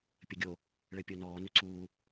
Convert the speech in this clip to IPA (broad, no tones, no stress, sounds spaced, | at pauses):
pʲ ə ɡʲ o | ɭ ɘ pʲ o n ɔː n ø ǀ uː